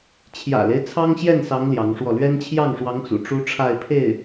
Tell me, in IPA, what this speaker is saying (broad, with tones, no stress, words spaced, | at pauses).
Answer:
t͡ɕʰjä̰˨˩le˦ɪ̯ t͡sʰɑ˥ŋɕjɛ˥˩nsɑ˧˥ŋ ljɑ˧˥ŋʂwɔ˥˩ lɥɛ˥n t͡ɕʰjɑ˥˩ŋʂwɑ˧˥ŋt͡sṵ˨˩ ʈ͡ʂu˥ʈ͡ʂʰa˥˧ɪ̯pʰe˥˩ɪ̯